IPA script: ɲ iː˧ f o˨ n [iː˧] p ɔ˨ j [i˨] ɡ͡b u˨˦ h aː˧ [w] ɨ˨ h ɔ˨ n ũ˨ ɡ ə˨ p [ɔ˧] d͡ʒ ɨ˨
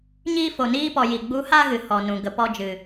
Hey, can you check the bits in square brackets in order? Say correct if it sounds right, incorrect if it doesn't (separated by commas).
correct, correct, incorrect, correct